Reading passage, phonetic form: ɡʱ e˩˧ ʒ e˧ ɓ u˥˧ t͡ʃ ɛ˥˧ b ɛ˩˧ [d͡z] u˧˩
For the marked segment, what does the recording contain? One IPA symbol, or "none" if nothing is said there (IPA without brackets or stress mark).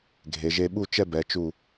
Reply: t͡ʃ